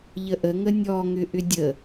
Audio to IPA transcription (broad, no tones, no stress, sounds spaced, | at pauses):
ʎ ə ʔ ə ŋ ə nʲ ɔ ŋ ʏ ʔ ʏ dʲ ə